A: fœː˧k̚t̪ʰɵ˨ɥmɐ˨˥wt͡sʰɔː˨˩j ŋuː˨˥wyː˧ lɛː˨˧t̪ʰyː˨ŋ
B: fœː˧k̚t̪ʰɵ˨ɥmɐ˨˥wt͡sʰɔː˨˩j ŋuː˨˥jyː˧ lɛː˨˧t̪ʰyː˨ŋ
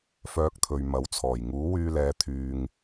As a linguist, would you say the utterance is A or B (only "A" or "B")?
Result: A